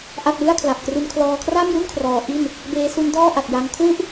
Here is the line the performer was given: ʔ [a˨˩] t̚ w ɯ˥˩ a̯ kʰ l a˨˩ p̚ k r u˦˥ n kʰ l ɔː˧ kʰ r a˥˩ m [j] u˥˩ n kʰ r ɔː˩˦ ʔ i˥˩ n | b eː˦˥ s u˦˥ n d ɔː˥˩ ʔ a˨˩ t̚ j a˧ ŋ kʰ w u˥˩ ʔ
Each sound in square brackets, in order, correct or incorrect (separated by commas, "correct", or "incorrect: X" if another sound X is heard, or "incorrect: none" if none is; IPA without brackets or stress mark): incorrect: a˥˩, correct